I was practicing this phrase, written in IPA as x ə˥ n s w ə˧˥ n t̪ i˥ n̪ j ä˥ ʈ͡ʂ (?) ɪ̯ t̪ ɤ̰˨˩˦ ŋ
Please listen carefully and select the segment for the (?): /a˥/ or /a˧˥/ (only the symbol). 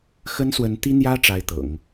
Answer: a˥